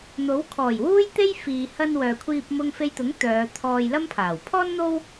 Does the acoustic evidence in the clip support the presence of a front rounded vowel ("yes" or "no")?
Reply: yes